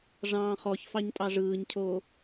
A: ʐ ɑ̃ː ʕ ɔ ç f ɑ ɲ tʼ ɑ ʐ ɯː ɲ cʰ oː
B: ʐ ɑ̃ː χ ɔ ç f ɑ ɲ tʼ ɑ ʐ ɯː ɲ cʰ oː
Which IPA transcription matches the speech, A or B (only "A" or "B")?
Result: B